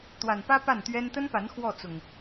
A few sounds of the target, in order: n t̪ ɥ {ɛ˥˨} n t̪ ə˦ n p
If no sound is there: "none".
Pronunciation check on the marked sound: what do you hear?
ɛ˦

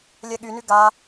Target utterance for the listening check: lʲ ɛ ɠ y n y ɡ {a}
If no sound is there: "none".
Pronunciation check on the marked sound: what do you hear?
a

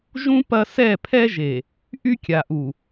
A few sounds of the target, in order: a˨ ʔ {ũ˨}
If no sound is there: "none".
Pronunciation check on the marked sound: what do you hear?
u˨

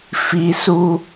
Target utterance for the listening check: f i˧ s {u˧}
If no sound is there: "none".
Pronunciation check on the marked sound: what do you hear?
u˧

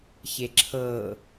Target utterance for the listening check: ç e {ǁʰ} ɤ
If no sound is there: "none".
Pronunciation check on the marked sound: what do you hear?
ǁʰ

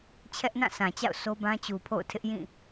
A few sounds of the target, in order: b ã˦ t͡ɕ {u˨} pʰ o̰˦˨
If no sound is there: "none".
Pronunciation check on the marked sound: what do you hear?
u˨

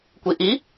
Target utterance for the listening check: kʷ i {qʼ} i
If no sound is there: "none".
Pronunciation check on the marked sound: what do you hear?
ʔ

